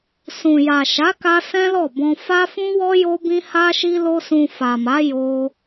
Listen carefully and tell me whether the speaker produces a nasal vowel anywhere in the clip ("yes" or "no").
yes